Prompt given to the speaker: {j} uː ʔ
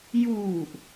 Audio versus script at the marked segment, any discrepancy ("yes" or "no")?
no